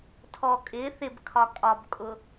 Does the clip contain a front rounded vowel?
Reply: no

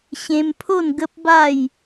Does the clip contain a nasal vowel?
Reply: yes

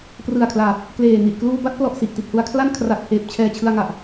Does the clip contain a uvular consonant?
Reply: no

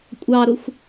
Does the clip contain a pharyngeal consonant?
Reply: no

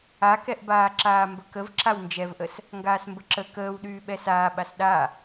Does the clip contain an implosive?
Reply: yes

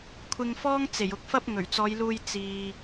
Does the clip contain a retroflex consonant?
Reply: no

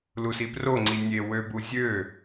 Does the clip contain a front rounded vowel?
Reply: yes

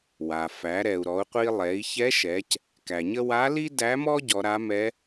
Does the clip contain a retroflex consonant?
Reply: no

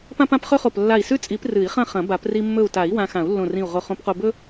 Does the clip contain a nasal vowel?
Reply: yes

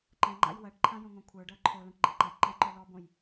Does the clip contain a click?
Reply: yes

